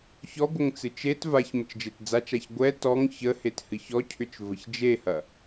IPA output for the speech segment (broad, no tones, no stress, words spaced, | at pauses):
çɔɡʷəŋ t͡sɨt͡ʃet vaç mət͡ʃd͡ʒetd͡zat͡ʃaç ɡʷɛ tɔŋ çəhet hɨçɔcʰʏt͡ʃ vəçd͡ʒehɐ